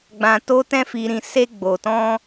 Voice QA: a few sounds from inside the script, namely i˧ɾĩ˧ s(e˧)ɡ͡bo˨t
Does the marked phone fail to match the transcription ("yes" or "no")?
no